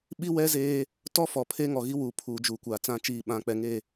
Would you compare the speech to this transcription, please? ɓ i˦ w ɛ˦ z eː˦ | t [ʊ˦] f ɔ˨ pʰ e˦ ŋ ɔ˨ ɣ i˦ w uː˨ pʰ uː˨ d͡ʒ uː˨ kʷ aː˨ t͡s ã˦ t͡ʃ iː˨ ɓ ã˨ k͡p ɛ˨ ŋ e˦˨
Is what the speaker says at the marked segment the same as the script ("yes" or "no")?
no